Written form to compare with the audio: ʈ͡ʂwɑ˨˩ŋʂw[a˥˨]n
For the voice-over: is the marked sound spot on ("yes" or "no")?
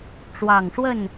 no